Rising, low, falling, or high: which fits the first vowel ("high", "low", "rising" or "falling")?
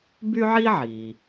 high